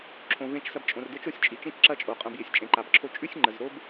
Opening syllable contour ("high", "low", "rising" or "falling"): low